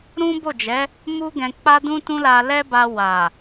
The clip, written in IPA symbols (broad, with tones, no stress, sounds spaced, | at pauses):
ɾ ũ˦ b o˦˨ d͡ʒ ɛ˨˦ | m u˦ ɡ ɛ̃˧ k͡p a˦ d ũ˦ t ũ˦ l a˧ l ɛ˦ b a˧ w a˨